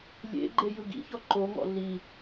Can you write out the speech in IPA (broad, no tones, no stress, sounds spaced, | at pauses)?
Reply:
lʲ ḛ ɡ͡ǃ e j ɯ ɡ ḭ ç ɔ ǃ o ŋ ɔ̰ ɮ i